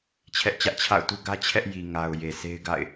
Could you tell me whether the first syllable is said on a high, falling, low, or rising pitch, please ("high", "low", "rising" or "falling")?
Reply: high